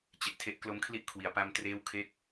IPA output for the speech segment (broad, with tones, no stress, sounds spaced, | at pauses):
t͡ɕ e˨˩ ʔ tʰ e˦˥ ʔ k l o˦˥ m kʰ l i˥˩ ʔ kʰ w i˨˩ a̯ p a˧ m t r eː˦˥ w kʰ e˦˥ k̚